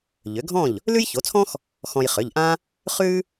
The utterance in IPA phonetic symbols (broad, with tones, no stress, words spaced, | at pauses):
ʎʏ˩˥ɡʱɔ̃˥˩ʎ | lʉ˥jço˩˥t͡sʰɔ̃˥x | xɔ̃˧jχʏ˩˧˩ʎʔã˥ | χʉ˥